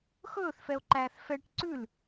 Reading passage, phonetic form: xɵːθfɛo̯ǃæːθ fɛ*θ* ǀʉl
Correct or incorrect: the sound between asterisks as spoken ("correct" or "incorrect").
incorrect